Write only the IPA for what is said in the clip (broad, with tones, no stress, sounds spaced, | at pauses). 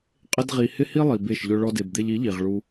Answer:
qʼ ɪ˦ d ʁ i˧ h ɪ˦ h i˦ lˠ i˨ b e˦˨ ʃ ʎ ʊ˦ ɭ ɔ˧ d e˨ b d̪ e˧ ʎ i˨˦ ʎ i˨ ʁ ɭ u˧